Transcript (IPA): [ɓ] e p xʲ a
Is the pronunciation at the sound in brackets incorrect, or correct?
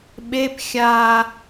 correct